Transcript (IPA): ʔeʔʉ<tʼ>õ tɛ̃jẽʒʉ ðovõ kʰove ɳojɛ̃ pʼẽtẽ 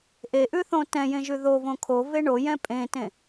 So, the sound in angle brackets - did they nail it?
no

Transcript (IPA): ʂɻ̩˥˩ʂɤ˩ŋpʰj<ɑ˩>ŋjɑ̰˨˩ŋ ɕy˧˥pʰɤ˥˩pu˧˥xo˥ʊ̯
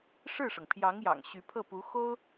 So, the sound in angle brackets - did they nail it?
no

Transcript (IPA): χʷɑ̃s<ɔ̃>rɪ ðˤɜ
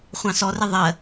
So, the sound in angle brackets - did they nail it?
no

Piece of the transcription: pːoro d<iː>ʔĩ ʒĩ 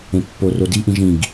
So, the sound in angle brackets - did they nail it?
no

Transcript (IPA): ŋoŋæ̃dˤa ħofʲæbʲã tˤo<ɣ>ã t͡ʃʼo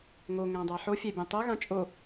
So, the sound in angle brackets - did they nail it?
yes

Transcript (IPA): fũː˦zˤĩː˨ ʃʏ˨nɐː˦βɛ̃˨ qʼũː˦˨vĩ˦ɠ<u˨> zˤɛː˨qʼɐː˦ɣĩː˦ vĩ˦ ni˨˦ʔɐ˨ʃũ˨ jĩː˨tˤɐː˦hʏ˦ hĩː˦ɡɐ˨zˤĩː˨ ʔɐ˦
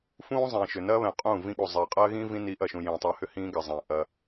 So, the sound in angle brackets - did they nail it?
yes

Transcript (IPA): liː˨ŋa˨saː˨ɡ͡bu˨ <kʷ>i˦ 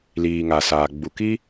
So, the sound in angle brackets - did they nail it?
no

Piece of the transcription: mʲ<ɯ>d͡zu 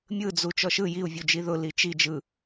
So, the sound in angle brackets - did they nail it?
yes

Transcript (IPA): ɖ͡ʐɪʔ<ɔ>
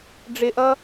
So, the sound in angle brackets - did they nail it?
no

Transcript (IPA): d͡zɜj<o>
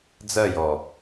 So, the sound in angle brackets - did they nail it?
no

